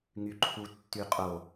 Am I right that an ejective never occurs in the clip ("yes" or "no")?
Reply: no